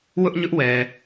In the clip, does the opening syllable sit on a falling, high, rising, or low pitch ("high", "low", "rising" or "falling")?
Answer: high